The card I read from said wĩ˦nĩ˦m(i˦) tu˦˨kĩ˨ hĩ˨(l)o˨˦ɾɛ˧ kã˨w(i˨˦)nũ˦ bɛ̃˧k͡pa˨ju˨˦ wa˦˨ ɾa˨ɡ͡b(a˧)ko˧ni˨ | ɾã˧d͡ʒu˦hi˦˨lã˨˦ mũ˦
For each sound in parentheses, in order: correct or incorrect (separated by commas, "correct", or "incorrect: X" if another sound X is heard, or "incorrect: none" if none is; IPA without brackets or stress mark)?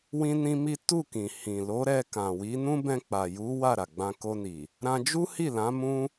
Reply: correct, correct, correct, incorrect: ã˧